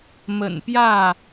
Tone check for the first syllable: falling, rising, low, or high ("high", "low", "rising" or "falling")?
low